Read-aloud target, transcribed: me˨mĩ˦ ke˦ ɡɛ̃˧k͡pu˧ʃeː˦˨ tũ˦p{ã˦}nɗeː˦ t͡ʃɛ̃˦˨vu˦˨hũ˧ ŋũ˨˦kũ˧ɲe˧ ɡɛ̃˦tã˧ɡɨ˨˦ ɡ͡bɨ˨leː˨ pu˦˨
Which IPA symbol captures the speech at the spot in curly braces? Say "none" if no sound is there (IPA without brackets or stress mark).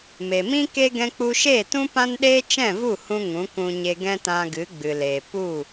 ã˦